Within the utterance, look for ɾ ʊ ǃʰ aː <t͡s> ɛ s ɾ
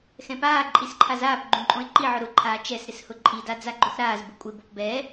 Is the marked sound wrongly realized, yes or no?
yes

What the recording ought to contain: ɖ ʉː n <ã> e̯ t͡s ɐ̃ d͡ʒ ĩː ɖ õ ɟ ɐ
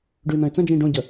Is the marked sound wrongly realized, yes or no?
yes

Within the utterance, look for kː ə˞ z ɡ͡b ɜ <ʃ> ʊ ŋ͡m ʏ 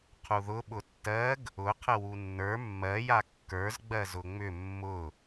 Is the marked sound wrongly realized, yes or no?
yes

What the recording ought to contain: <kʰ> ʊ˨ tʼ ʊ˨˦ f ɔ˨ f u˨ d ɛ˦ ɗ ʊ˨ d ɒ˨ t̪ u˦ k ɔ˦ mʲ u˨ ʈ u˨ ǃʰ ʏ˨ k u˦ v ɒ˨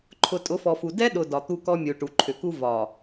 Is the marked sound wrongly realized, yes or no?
yes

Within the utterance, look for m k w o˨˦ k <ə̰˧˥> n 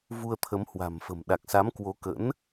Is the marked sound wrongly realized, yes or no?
no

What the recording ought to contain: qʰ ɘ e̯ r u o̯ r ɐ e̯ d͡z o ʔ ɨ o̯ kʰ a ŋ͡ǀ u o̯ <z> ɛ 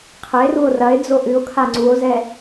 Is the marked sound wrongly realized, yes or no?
no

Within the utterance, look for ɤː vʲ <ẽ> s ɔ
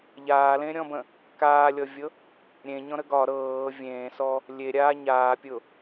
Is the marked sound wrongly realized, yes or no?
yes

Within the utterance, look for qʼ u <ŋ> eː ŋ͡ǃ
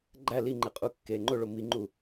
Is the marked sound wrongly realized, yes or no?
yes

